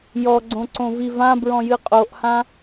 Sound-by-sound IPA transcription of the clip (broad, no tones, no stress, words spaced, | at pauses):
jɔɡ͡ǀõǀõvi vãbɹɔ̃jɨ qʼoʔhã